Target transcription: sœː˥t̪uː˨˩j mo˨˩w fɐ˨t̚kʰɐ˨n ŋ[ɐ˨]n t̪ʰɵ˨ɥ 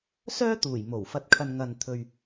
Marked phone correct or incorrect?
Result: correct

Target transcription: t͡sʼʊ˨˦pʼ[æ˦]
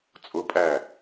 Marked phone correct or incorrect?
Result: incorrect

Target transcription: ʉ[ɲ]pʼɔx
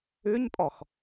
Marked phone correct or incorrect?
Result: correct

